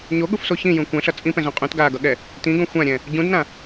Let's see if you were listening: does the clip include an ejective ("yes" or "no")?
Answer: yes